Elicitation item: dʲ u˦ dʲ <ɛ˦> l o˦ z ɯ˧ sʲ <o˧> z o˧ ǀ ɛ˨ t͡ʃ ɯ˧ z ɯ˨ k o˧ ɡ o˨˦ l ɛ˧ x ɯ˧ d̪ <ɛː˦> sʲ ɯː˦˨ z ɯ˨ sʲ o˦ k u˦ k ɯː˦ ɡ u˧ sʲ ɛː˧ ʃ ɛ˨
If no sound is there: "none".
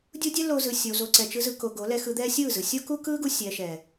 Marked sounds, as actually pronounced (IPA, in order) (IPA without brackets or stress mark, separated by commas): ɛ˦, o˧, ɛː˦